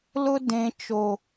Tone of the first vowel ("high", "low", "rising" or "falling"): high